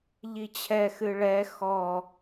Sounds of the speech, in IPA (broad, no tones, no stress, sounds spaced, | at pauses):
ʎ i t͡ɕʰ ɛ x ɨ ɭ ɛ x ɔ